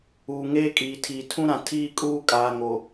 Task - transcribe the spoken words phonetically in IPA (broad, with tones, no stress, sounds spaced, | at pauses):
uː˨ ŋ eː˦ kʼ iː˨ tʰ iː˨ tʰ ũ˦ ɾ ã˨ tʰ iː˦ kʼ uː˦ kʼ aː˨ ŋ oː˨